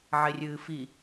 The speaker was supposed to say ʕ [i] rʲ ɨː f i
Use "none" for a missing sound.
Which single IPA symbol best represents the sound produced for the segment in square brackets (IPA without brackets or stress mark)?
e